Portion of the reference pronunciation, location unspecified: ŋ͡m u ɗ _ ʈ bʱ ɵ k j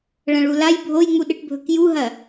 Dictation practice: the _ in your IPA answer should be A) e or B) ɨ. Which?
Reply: B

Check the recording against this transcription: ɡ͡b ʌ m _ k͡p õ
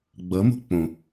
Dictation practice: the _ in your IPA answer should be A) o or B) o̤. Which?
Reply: B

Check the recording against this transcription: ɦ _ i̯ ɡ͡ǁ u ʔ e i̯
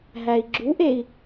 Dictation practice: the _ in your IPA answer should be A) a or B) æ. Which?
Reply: B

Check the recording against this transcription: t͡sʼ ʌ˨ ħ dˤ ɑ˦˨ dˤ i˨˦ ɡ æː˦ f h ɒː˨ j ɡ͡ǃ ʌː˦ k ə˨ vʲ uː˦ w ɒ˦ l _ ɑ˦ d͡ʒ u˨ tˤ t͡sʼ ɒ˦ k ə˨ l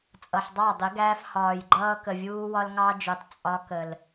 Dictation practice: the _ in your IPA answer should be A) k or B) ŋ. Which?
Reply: B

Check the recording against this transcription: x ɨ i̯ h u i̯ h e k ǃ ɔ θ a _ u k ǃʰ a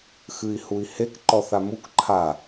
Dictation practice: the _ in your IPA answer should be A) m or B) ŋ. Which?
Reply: A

